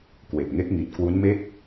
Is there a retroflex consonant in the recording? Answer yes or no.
no